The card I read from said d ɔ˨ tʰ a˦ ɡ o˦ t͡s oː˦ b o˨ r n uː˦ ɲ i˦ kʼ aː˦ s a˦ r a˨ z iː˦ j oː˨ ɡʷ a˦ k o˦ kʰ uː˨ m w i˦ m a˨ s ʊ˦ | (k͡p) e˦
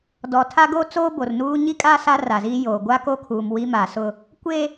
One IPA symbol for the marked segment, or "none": kʷ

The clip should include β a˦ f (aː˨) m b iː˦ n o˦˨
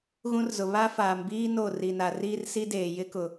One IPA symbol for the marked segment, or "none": aː˨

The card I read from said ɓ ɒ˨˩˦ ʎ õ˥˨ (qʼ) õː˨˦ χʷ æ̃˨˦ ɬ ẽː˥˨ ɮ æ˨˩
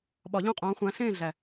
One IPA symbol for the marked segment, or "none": qʼ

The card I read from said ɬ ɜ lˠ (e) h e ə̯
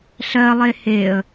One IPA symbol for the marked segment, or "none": e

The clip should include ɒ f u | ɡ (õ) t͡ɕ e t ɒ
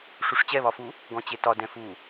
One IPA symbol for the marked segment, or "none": ɔ̃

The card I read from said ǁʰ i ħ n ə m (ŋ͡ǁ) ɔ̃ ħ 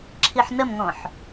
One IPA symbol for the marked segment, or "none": ŋ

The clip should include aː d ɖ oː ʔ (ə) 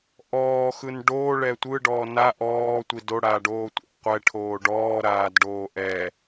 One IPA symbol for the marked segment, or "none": ɛ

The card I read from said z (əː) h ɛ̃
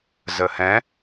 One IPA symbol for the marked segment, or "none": əː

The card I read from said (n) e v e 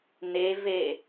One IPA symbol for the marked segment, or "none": n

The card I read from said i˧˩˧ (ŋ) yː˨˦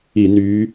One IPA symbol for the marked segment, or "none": n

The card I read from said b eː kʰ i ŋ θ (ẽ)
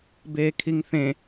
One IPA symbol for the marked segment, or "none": ẽ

